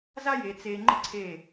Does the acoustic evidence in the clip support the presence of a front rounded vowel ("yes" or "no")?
no